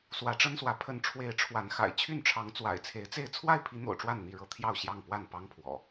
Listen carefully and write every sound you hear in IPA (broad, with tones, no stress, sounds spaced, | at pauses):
s w ä˨˦ ʈ͡ʂ ə˦ n s w ä˨˦ pʰ ə˨˦ n ʈ͡ʂʰ w e˨˦ ɪ̯ ʈ͡ʂʰ w a˨˦ n x a̰˨˩ ɪ̯ t͡ɕʰ y˥˨ n ʈ͡ʂʰ ɑ˨˦ ŋ t͡s w a̰˨˩ ɪ̯ t͡sʰ e˨˦ ɪ̯ t͡s e˥˨ ɪ̯ t͡sʰ w a˥˨ ɪ̯ pʰ i˨˦ n̪ o̰˨˩ ʊ̯ ʈ͡ʂ w a˥˨ n n̪ i˥˨ ɻ ɤ˦ t̪ʰ j ɑ˥˨ ʊ̯ ɕ j ɑ˥˨ ŋ p w a˥˨ n p ɑ˦ ŋ pʰ w ɔ̰˨˩